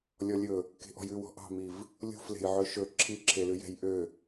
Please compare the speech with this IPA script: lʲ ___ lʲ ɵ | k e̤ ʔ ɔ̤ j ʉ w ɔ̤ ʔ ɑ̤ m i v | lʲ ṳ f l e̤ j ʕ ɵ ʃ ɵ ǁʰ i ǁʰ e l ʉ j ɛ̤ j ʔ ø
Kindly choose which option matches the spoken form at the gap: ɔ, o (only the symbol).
ɔ